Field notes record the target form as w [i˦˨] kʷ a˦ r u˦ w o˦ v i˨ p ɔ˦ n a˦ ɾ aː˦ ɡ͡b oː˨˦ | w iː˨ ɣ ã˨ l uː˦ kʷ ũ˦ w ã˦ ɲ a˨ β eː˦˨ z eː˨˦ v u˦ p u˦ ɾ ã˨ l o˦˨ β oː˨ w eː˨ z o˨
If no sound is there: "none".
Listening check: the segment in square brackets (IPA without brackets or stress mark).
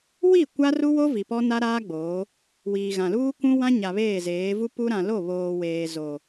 i˦˨